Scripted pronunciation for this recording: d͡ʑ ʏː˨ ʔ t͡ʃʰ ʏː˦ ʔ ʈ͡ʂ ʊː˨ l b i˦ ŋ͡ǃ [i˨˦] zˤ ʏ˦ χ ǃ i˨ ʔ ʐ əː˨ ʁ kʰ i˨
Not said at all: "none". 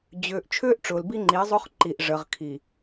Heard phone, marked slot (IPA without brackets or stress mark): i˨˦